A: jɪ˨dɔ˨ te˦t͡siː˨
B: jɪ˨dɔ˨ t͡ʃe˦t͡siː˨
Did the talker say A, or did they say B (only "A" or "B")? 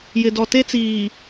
A